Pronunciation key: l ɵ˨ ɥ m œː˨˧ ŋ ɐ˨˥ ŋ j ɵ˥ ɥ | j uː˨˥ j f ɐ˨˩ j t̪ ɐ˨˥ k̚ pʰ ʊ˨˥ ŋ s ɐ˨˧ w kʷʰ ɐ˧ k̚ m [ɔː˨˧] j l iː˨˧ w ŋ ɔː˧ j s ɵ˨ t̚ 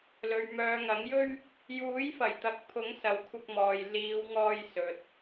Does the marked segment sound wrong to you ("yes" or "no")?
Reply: yes